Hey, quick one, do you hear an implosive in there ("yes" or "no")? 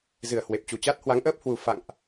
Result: no